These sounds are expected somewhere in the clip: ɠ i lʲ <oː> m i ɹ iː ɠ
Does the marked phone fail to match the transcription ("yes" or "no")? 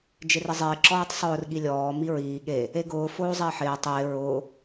yes